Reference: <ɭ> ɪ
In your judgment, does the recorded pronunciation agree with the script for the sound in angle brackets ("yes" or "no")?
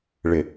yes